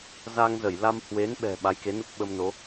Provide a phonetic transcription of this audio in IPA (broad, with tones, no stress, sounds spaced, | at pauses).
z a˧ ŋ z ə˧˩ j l a˧ m h w e˨˦ n ɓ ɛ̤˨˩ ɓ a˨˦ j k e˨˦ n u˦˥ k̚ ɓ ə˧ m n o˨˦